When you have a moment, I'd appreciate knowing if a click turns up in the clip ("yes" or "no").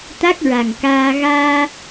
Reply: no